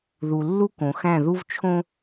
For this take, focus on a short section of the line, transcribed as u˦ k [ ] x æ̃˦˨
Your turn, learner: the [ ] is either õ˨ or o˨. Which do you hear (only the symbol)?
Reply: õ˨